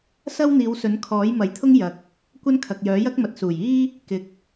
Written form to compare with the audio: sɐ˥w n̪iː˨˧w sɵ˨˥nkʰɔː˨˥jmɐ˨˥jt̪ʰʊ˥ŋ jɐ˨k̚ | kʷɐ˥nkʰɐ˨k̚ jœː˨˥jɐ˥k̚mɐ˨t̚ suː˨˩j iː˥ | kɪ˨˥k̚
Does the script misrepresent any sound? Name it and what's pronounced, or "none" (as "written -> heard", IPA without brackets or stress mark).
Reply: none